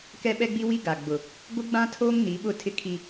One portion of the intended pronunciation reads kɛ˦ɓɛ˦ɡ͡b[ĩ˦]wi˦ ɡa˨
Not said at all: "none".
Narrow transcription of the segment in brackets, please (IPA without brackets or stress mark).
i˦